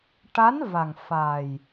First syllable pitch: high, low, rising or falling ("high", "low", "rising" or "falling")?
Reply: rising